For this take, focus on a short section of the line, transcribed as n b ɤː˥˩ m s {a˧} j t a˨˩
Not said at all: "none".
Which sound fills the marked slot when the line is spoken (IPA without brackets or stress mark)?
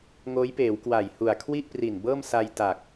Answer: a˧